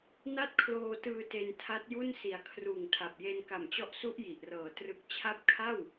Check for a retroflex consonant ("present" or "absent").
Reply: absent